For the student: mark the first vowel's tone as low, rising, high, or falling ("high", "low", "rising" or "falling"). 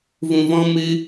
low